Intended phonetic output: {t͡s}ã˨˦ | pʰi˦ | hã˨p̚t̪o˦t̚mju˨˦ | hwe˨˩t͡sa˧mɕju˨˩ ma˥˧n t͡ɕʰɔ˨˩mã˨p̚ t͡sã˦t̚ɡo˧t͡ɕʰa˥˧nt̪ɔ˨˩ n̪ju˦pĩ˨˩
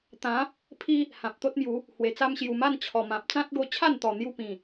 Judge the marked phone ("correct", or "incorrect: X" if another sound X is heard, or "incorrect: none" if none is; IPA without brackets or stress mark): incorrect: t̪